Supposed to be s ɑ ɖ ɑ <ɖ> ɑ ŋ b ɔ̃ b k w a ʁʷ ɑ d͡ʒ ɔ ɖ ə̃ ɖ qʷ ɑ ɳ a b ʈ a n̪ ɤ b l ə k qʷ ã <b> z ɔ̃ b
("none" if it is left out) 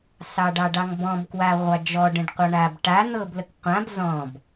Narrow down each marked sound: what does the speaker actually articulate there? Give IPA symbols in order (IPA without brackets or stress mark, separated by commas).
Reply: ɖ, b